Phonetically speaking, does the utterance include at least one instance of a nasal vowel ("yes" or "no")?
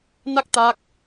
no